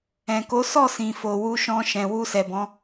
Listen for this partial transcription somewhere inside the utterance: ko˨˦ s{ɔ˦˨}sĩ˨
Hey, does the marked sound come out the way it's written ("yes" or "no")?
yes